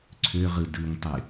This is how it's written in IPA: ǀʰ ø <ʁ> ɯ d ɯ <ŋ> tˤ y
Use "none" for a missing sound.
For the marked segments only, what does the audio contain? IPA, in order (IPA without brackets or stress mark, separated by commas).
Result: ʁ, ŋ